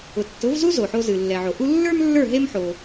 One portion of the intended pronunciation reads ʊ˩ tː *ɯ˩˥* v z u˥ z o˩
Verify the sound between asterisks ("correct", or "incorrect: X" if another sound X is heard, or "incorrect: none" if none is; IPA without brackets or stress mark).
incorrect: ʊ˩˥